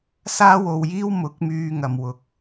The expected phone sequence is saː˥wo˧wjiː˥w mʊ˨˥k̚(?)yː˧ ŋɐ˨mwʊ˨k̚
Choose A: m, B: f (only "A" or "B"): A